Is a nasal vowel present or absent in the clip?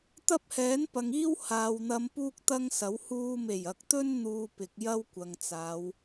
absent